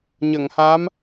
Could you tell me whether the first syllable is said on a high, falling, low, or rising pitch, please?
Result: low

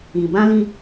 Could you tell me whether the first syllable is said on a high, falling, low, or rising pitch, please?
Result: low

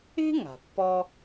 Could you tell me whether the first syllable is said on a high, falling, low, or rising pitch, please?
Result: high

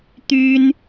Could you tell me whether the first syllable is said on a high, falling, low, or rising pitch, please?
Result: high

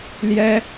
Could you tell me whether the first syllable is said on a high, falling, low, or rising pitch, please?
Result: high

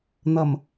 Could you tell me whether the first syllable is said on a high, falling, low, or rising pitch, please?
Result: low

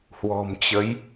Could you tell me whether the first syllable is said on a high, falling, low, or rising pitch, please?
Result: low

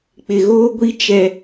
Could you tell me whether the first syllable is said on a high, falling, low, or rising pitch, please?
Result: low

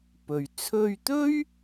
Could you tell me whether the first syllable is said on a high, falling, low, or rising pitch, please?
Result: low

